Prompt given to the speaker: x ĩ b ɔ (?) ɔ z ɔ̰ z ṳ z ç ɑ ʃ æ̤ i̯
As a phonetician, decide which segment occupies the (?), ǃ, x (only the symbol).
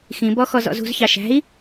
x